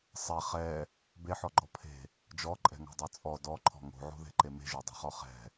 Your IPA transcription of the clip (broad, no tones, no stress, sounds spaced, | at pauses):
sˤ ɛ χ ɛ | b e ħ ɔ ɡ͡ǃ ɔ pʰ e̤ | d͡ʒ ɔ ǃʼ ɛ̤ ŋ o̤ dˤ ɤ t͡sʼ ɔ d ɔ ǃʰ ɔ̤ ŋ o̤ ʕ o̤ ð e̤ ǃ e m e̤ ʒ o dˤ e̤ χ ɔ χ ɛ̤